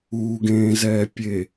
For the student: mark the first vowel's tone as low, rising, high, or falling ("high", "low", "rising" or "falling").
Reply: low